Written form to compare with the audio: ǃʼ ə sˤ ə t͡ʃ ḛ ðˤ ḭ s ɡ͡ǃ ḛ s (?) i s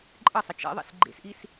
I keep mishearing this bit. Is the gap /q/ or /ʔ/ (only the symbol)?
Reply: ʔ